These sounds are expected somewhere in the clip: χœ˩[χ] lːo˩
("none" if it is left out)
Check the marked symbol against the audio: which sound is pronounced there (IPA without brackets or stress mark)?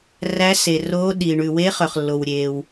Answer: χ